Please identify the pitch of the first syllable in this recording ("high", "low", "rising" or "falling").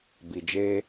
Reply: low